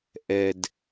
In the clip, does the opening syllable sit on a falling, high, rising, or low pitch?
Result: low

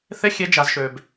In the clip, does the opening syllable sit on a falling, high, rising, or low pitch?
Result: high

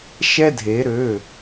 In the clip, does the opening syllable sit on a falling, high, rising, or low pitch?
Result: high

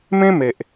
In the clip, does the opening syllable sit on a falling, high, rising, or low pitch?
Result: high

